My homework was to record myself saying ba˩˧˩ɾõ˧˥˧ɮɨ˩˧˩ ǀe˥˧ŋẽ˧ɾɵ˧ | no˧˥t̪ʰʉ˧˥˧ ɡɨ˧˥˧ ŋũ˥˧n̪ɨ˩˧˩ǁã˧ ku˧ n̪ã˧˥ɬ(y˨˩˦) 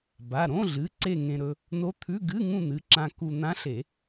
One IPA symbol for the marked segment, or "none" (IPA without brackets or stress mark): e˨˩˦